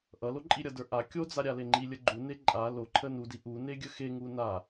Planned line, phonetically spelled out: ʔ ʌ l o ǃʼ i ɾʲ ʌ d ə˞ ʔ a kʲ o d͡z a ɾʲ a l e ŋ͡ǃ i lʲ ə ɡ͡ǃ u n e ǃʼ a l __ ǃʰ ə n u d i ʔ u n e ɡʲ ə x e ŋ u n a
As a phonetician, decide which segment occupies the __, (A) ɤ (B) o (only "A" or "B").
B